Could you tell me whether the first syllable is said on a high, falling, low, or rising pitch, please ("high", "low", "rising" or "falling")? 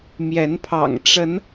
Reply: rising